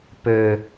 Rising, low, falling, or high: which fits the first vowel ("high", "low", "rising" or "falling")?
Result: low